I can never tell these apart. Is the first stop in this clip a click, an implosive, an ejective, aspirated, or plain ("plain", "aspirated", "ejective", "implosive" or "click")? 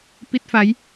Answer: plain